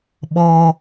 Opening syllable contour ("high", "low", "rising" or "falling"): high